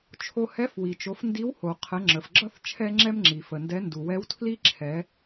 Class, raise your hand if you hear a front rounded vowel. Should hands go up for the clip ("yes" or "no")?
no